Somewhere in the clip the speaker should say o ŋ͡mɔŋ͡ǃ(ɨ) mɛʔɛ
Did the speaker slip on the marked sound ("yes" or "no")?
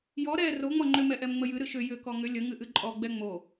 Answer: yes